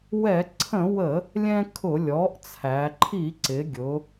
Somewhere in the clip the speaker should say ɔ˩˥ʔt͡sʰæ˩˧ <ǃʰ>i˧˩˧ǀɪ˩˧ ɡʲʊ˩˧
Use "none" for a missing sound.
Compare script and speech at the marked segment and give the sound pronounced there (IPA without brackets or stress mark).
ǃʰ